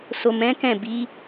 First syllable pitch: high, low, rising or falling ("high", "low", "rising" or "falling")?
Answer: low